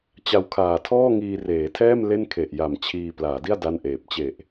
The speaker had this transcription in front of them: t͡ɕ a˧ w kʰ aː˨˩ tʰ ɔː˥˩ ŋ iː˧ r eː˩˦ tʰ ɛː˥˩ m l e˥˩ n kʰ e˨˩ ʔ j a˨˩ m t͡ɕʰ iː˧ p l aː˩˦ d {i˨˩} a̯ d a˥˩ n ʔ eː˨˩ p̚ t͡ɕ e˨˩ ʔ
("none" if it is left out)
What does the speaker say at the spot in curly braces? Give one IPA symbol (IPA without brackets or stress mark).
i˥˩